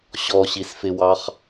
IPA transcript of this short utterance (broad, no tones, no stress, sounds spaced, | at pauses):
ɕ ɔ ɕ i s f ɪ w ɑ χ